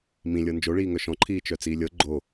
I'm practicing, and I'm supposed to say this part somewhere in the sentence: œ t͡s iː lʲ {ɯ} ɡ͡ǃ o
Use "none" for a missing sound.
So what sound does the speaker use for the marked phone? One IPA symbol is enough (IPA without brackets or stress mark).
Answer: ɤ